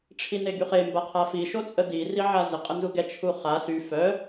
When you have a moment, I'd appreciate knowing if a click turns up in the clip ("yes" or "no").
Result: no